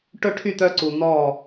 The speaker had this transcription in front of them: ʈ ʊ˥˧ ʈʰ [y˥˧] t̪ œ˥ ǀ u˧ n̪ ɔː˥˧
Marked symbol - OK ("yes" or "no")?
yes